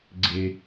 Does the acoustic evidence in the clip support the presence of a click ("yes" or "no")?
yes